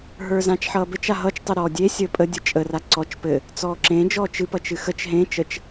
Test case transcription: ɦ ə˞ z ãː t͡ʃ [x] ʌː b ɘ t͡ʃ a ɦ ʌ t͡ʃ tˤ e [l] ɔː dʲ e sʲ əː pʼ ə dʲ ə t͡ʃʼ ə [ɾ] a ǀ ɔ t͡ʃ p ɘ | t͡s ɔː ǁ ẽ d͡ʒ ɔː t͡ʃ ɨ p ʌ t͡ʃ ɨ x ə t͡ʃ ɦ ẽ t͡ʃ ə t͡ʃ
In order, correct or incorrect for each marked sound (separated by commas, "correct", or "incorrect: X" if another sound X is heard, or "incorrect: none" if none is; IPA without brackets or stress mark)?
incorrect: ħ, incorrect: ɾ, incorrect: r